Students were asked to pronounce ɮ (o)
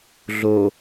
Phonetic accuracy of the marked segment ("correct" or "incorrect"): correct